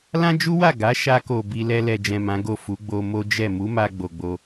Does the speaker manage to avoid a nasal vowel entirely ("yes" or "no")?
no